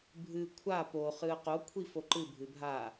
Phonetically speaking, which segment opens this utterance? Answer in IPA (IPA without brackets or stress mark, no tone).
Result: bʱ